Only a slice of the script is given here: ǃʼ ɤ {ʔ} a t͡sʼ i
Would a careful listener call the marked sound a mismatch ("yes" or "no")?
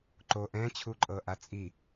no